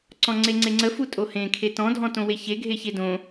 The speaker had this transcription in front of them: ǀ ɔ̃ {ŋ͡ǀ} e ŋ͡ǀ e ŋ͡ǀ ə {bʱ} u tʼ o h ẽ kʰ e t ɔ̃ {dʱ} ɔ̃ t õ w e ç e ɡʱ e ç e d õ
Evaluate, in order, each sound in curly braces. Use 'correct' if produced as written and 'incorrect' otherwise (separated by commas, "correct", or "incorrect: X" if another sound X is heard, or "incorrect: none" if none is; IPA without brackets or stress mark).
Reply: correct, incorrect: f, correct